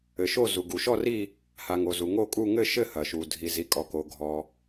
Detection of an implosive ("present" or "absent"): absent